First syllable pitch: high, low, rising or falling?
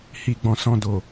low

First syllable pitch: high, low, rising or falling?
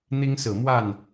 high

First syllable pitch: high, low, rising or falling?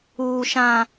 high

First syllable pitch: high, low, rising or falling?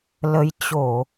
rising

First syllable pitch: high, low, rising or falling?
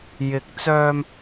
rising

